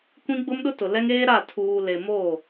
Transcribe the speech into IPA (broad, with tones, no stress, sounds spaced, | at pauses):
kʷ ĩ˦ ɡ͡b ʊ˦ m ɗ ʊ˦ t ʊ˨ l ɛ˦ ŋ eː˦ ɾ a˦˨ tʰ uː˨ l e˨ m o˦˨